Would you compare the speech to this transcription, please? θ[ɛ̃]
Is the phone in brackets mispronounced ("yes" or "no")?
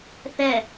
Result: yes